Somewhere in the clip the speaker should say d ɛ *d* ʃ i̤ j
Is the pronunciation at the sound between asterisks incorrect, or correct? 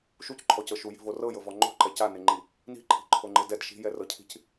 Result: correct